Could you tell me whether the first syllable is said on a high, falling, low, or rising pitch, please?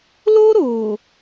high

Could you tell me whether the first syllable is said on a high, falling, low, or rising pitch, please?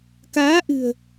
rising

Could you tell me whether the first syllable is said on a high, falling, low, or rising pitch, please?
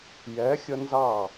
rising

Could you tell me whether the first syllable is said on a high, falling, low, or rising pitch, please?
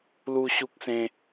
high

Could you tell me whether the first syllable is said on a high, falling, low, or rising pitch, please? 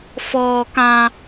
high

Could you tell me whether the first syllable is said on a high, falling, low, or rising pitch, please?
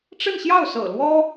falling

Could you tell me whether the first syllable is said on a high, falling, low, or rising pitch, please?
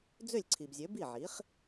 falling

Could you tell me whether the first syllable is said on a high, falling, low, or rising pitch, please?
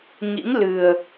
rising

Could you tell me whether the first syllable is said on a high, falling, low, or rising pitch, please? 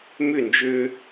falling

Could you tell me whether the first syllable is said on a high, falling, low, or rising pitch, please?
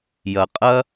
low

